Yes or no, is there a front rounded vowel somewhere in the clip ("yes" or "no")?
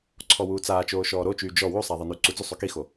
yes